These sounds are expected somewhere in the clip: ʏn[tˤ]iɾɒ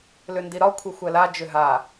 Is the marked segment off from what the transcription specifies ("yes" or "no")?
yes